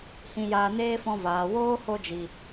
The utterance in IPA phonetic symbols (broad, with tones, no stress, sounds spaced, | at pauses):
h ĩ˧ j a˧ n eː˦ f ɔ̃˧ v aː˨ w oː˦ h o˧ d͡ʒ i˨